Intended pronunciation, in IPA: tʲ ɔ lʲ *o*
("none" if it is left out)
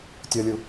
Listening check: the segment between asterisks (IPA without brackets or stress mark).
u